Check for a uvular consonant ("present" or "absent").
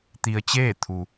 absent